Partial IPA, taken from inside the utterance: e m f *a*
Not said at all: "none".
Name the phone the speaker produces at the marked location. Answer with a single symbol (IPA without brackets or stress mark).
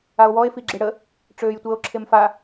a